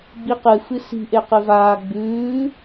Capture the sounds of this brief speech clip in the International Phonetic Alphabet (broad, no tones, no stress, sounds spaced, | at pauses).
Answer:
ɡ͡b i q ɨ f ɨ s i̤ ʔ e q ɨ v aː ɡ͡b ʉː